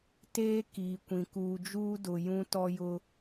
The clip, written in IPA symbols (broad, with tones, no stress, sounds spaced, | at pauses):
t eː˦ k iː˨ kʷ ĩ˨ k uː˨ d͡ʒ uː˦ d ʊ˨ j ũ˦ t ɔ˦ j ʊ˦